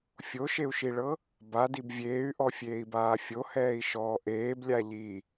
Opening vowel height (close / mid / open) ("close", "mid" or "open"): mid